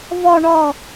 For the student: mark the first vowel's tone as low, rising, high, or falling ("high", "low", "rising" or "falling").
low